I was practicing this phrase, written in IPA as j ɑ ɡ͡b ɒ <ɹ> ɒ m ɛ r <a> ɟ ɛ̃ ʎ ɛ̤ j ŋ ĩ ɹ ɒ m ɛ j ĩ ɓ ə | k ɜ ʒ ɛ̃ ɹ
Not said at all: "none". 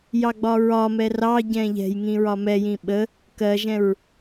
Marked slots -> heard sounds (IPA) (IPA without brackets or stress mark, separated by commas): ɹ, ɑ